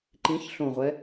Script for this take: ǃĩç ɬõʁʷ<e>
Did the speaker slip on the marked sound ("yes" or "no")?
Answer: yes